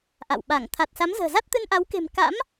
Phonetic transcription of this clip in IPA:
ʔ a̰˧˨ w ɓ a˧˩ ŋ t̪ʰ a˨˩ t̚ s a˨˦ m z ə̤ː˨˩ z a˦˥ t̚ t̪ ɨ˧ n ʔ a˨˦ w k e̤˨˩ m k a̰˧˥ m

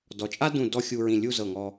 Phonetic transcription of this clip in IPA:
d ɔ˩˧ t͡ʃʼ a˥ d ũ˧˩ d ɔ˥˧ xʲ u˧ ɹ ĩ˧˩ lʲ u˥˧ z ɤ˧˩ ŋ ɔ˧

